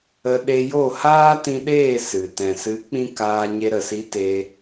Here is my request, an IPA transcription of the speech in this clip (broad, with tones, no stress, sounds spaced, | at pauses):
ə˧ ɗ e˧ j o˦˨ h aː˦ t ĩ˧ ɗ eː˦˨ s ɨ˨ t ɛ̃˨ s ɨ˨˦ k͡p ĩ˧ k aː˧ ɲ e˧ ɾ ə˨ s i˧ t e˧